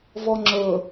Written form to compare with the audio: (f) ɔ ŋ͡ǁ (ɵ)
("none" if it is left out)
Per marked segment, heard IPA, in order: v, ɵ

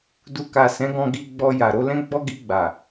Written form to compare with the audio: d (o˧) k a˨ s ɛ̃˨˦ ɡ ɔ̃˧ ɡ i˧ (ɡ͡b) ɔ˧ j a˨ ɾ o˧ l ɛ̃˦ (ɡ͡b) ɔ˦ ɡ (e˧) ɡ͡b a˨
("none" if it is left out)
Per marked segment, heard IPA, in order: u˧, ɡ͡b, ɡ͡b, i˧

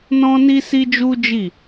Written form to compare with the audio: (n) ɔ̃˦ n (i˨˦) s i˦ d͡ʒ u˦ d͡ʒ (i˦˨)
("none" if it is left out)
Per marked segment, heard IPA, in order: n, i˦, i˦˨

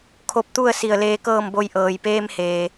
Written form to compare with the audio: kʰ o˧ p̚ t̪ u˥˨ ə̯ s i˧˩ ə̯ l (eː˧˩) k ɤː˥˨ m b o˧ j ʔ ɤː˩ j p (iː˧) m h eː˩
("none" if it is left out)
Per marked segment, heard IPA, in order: eː˧, eː˧

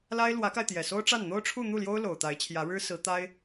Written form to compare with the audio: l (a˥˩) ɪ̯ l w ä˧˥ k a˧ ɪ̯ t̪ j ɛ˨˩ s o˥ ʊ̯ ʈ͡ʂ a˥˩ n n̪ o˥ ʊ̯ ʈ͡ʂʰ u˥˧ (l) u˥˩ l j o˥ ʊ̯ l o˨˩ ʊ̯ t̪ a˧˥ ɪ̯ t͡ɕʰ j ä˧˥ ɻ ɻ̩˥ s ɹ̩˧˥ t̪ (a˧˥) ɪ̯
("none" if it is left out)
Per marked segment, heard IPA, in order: a˥, n̪, a˥

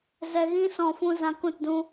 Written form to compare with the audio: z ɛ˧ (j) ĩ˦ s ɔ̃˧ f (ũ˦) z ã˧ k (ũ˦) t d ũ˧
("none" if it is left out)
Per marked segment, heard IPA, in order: ɣ, ũ˦, ũ˦˨

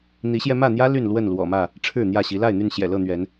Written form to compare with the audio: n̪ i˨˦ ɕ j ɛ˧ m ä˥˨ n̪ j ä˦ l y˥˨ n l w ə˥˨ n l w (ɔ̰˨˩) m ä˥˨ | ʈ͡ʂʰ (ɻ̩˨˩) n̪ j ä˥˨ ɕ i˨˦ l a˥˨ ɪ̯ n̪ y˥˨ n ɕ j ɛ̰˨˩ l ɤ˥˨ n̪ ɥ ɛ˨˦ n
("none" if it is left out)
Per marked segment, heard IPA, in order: ɔ̰˨˩, ɻ̩˥˨

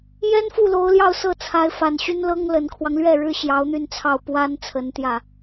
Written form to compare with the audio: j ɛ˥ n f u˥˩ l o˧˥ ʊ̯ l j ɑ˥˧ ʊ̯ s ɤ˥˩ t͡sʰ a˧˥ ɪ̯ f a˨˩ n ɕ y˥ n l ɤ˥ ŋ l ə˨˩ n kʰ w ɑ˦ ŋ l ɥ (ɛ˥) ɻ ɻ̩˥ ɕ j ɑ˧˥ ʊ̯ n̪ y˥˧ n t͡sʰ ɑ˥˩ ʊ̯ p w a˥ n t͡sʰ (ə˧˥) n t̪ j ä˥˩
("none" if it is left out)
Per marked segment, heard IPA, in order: ɛ˥˩, ə˧˥

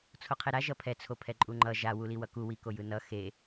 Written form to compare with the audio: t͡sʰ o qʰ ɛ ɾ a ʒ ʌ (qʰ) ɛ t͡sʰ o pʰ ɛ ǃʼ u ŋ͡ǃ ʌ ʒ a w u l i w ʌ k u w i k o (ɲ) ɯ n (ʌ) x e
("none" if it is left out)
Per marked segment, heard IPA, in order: pʰ, j, ʌ

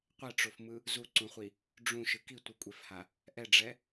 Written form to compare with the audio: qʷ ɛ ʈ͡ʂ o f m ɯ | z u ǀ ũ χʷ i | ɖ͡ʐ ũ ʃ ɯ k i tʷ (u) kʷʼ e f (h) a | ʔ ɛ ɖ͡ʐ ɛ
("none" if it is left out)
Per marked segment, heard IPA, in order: ɯ, h

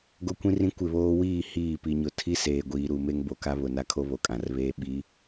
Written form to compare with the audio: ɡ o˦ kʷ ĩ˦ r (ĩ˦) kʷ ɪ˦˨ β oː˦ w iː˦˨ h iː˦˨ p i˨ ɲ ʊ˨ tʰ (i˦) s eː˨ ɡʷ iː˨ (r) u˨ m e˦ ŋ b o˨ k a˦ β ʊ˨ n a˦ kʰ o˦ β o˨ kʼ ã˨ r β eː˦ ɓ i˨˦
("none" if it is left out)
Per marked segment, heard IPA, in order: ĩ˦, i˦, ɾ

